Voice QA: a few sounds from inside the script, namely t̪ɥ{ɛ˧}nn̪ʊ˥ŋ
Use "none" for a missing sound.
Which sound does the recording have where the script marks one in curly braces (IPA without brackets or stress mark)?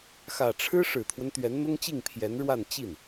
ɛ˧˥